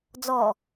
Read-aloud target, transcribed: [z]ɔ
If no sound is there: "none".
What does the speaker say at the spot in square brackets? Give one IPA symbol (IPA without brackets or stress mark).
d͡z